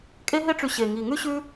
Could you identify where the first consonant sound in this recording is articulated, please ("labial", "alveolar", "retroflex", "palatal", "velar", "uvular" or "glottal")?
velar